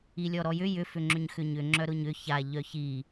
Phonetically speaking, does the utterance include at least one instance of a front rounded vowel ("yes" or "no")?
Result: yes